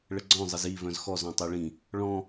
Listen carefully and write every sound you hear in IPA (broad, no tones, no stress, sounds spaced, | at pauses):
ɭ ə ɡ͡ǀ ɔ̃ zˤ ə z i v œ̃ z x ɔ z ɔ̃ tˤ œ ɭ ĩ | ɭ ɔ̃